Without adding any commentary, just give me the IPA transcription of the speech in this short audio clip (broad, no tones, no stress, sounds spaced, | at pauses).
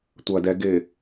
tʷ ɐ d ɛ ɡ ɪ